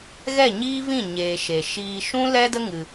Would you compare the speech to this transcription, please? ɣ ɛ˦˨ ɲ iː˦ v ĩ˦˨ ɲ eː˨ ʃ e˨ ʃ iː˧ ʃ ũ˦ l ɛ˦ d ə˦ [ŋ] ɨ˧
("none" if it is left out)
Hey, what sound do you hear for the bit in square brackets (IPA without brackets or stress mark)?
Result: ŋ